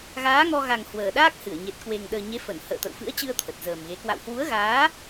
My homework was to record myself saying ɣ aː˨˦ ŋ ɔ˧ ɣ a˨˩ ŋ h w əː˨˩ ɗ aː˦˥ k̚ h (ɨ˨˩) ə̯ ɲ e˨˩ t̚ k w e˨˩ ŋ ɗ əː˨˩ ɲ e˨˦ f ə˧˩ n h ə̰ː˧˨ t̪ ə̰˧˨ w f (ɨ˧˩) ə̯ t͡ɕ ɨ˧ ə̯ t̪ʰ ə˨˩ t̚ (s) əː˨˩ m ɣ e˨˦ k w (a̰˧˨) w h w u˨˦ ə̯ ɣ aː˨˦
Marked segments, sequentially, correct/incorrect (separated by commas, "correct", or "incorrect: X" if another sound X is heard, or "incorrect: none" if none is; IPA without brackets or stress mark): incorrect: ɨ˧˩, incorrect: ɨ̰˧˥, incorrect: z, correct